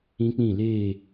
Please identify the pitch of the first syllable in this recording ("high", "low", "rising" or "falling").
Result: high